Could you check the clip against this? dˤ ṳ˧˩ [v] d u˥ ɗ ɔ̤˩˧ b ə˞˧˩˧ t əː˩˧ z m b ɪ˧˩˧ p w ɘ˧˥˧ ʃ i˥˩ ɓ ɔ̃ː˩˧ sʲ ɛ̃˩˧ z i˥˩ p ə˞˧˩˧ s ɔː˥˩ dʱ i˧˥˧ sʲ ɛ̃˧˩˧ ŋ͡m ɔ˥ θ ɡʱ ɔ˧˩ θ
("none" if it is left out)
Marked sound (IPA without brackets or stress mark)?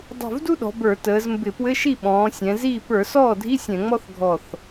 v